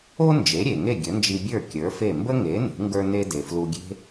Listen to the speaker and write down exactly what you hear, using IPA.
o˥ n d͡ʒ e˩˥ ɾʲ e˩ ŋ e˥˩ ɡʲ ə˩˥ n d͡ʒ i˧ bʲ ə˞˥˩ kʲ ə˞˩˥ f e˥˩ m b ə˥ ŋ e˩˥ n ṳ˩˥ ŋ ɡ ə˞˥ n e˥ d e˩ f l u˧ ɡʲ e̤˥

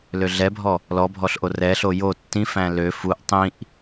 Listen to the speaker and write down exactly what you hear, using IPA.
l ø ɮ ɛ bʱ ɔ | l ɔ bʱ ɔ ɬ ʔ o r ɛ ɬ o j o tː ĩ f æ̃ l ø f u ʔ tˤ ĩ ʔ

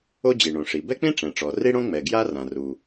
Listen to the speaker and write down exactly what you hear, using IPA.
o˥ d͡ʑ i˩ ɳ õ˩ ʂ i˩ b ɛ˥ k͡p ĩ˥ ʈ͡ʂ ɛ̃˩ ʈ͡ʂ ɔ˩ r i˥ ɽ õ˥ ŋ͡m ɛ˩ ɡ j a˥ r ã˩ r u˩

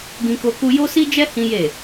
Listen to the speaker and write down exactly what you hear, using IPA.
ɡ ĩ˧ k o˧ k u˧ j o˦ s i˦ d͡ʒ ɛ˦ h ĩ˦ j e˦˨

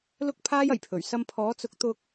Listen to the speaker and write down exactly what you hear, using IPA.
l ʊ˥ k̚ pʰ aː˥ j ɐ˨˩ j pʰ ɵ˨˩ ɥ s ɐ˧ m pʰ ɔː˨˥ t͡s ʊ˨˥ k̚ t̪ ʊ˧ k̚

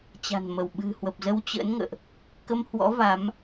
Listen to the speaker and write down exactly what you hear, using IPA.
t͡ɕ a̤˨˩ n m ə˧˩ w ɓ ɨ̤˨˩ h w ə˨˩ p̚ z ə˧ w t͡ɕ ə̰ː˧˥ n ŋ ə̰ː˧˨ ʔ | k ə˧ m h w ɔ̰˧˥ v a˨˦ m

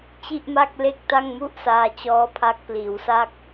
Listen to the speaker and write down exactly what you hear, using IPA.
t͡ɕ i˥˩ ʔ m a˥˩ k̚ l e˥˩ k̚ t a˥˩ ŋ m u˥˩ ʔ s aː˧ t͡ɕ ɔː˦˥ pʰ a˦˥ k̚ p l iː˩˦ w s a˥˩ k̚

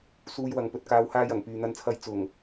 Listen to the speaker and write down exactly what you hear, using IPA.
s uː˧ j w ɐ˨˧ ŋ p ɵ˨ t̚ k aː˨˧ w h aː˧ j ɐ˨˩ ŋ p yː˨ n̪ ɐ˨ n t͡sʰ ɐ˨˧ j t͡s ʊ˨˩ ŋ

